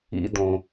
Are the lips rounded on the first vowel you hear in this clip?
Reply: no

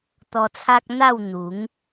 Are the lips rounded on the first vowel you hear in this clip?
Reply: yes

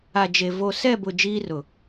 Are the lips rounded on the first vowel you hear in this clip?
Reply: no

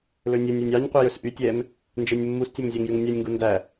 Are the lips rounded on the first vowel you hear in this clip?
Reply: yes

